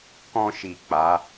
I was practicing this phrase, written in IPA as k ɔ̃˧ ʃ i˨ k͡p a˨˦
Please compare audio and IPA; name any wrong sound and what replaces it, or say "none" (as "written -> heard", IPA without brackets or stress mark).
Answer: none